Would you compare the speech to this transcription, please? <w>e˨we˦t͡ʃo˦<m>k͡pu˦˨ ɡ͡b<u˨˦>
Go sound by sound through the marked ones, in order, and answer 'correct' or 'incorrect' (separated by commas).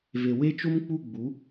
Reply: incorrect, correct, correct